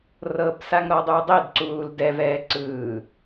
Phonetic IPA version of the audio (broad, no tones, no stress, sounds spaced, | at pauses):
r ɤ b s a ŋ ɾ ɔ dˤ u dˤ e d ǀ uː l d ɛ v ɛː ǀ ɯː